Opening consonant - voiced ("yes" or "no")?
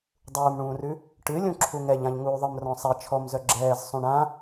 yes